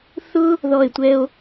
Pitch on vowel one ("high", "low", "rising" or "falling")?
high